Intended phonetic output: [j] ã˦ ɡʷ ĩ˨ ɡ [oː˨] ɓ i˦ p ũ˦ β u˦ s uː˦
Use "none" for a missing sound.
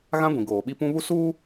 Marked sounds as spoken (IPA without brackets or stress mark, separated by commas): ɣ, oː˨